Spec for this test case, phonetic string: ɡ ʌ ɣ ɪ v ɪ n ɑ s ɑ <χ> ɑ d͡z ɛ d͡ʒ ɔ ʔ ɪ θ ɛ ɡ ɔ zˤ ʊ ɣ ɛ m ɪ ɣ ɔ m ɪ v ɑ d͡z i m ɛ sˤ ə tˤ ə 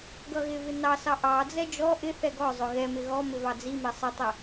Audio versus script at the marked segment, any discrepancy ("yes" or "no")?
yes